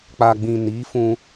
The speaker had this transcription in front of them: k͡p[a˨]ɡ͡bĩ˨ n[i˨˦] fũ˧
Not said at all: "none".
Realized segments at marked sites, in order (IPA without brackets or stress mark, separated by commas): a˨, i˨˦